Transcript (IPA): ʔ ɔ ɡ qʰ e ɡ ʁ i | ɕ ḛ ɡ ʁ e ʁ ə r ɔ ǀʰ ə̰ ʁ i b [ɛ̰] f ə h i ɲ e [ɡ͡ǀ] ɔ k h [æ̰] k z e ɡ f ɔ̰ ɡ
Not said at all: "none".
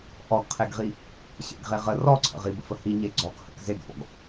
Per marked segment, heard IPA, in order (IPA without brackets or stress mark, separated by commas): ə̰, ɡ͡ǀ, ə̰